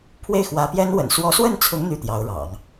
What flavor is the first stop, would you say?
aspirated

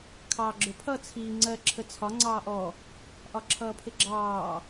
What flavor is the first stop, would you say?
aspirated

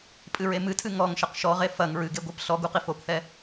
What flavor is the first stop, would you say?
ejective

